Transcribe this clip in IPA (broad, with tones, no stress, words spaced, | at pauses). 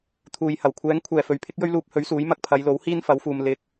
t̪ʰuː˨jhɐ˨˩w kʷʰɛː˨˧ŋkʷʰɛː˨˩ fɵ˨ɥpʰɪ˥k̚jɵ˥ɥluː˧p̚ hɵ˨˥ɥsuː˨˥j mɐ˧k̚pʰɐ˨˧jlo˨˥whiː˥n fɐ˨˥wfuː˨m lɪ˧k̚